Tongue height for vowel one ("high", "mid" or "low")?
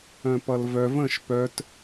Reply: mid